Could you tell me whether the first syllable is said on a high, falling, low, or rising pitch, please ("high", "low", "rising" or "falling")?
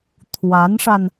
rising